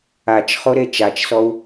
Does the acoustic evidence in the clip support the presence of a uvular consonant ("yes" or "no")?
yes